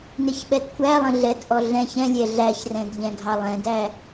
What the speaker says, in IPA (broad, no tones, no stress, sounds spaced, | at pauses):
n ɪ ç ɓ ɛ d kʷʰ æ lˠ ə̃ ɮ ɛ d ʔ ɔ ɮ ɛ̃ ç ɛ̃ lʲ ɛ ɮ æ ç r ɛ̃ d ʎ ɛ̃ ɡʱ ɑ lˠ ɛ̃ d æ